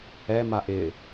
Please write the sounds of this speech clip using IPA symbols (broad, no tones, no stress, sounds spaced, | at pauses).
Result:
ɛ m a ʔ ɪ